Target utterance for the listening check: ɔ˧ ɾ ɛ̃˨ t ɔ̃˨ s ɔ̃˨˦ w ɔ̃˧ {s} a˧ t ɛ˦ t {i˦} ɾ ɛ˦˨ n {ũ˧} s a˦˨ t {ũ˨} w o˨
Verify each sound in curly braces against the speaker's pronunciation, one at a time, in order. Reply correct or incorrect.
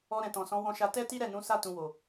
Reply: incorrect, correct, incorrect, correct

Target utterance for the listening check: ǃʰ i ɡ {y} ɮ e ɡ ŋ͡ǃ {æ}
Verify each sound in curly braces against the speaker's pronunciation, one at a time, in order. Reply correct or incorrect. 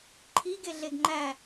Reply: incorrect, correct

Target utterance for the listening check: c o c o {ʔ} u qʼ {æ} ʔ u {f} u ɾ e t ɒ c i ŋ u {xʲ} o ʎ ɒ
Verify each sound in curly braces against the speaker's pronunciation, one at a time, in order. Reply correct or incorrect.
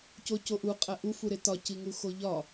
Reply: correct, correct, correct, incorrect

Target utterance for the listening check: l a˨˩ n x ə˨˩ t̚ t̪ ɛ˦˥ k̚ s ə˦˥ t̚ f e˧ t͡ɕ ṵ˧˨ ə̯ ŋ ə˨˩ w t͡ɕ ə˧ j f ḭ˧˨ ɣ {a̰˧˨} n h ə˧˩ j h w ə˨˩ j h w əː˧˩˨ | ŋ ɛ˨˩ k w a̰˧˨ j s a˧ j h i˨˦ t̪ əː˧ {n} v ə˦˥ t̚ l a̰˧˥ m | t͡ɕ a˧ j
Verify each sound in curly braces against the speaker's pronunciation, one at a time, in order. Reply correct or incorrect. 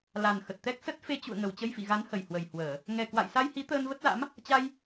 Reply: incorrect, correct

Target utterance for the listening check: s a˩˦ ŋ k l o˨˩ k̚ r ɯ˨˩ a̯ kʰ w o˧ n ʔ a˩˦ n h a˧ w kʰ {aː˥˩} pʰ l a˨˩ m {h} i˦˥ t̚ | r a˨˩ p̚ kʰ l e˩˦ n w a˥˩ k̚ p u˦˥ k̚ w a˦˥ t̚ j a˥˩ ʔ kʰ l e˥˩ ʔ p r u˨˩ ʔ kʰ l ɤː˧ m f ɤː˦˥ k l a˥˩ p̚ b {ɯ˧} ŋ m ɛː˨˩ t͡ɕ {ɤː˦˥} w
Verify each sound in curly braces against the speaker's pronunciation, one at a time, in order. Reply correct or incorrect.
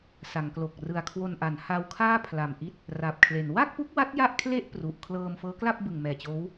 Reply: correct, incorrect, incorrect, incorrect

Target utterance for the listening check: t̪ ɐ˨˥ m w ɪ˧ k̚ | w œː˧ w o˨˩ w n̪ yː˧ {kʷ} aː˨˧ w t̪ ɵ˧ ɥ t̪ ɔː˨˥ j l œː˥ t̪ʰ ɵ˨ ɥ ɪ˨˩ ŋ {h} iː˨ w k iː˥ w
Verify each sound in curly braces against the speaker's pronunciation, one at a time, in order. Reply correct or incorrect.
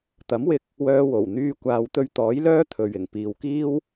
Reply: correct, incorrect

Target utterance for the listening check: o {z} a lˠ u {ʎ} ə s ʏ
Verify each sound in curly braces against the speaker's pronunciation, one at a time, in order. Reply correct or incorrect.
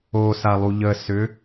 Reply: incorrect, correct

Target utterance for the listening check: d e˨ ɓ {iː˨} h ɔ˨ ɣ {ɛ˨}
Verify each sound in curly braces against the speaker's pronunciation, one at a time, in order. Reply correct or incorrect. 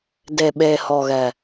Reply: incorrect, correct

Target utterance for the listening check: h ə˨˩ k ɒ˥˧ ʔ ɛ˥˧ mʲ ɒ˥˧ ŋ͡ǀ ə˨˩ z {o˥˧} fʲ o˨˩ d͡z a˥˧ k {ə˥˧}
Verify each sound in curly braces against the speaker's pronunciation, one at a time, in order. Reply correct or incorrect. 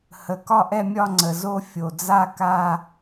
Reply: correct, incorrect

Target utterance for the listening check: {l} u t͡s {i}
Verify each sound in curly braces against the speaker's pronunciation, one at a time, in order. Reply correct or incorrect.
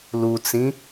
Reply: correct, incorrect

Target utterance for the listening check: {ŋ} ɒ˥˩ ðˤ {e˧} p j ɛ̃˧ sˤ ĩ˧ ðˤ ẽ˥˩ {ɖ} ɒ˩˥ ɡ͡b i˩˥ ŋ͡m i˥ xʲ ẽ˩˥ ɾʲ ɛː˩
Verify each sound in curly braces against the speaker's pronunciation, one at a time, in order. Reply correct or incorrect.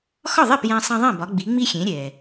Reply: incorrect, incorrect, incorrect

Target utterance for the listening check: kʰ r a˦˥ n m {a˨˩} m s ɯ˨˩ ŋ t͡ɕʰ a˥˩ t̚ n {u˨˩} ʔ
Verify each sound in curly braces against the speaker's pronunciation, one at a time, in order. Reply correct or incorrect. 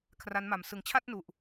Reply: correct, correct

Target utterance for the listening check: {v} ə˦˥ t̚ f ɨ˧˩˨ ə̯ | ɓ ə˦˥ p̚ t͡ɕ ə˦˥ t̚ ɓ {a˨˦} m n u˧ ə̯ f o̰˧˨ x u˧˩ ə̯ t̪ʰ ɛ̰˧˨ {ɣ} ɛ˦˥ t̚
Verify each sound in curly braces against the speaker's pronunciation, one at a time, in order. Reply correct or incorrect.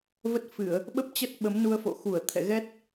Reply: correct, incorrect, correct

